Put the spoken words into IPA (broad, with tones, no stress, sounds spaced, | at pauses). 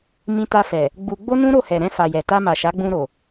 m ĩ˧ t a˧ f ɛ˨ | ɡ͡b u˧ ɡ͡b o˦ n ũ˦ ɾ o˦˨ h ɛ˨ ɾ ɛ̃˧ f a˨ j ɛ˨ t a˧ m a˨ ʃ a˨˦ ɡ͡b ũ˧ ɾ o˨